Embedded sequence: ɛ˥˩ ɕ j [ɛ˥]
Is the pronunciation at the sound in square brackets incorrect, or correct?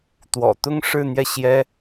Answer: correct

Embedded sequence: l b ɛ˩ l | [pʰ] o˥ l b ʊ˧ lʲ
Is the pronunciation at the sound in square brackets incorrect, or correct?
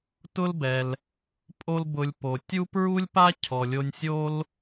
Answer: incorrect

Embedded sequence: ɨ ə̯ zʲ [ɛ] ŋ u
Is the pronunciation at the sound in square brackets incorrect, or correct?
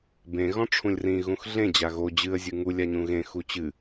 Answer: incorrect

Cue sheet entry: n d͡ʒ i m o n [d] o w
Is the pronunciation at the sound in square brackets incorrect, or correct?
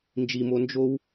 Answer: incorrect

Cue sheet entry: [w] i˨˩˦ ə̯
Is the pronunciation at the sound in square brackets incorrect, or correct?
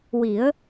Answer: correct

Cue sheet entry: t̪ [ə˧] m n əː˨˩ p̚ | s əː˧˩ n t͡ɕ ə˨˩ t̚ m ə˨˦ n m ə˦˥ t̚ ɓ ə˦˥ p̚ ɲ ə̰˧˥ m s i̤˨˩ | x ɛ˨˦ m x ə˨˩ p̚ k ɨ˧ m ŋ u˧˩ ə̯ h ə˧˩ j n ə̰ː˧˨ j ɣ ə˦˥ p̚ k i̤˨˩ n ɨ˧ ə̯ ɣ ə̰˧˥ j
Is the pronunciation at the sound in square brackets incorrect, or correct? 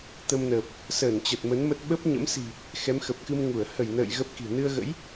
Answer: correct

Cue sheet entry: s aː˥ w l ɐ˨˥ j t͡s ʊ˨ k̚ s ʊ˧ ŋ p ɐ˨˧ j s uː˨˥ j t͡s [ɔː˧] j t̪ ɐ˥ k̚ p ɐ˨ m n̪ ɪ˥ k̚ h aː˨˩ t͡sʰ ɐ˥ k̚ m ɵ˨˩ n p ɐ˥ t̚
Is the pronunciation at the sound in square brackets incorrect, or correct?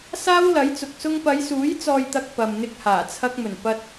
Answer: incorrect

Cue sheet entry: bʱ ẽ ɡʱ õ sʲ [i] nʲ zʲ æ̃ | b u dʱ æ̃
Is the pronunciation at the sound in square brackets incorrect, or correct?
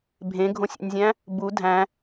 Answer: incorrect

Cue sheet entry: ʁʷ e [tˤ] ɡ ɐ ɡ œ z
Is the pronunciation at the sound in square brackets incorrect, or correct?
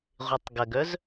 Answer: correct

